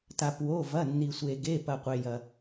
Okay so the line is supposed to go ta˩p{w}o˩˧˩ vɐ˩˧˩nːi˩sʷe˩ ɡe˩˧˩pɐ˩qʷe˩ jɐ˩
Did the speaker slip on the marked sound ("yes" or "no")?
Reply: no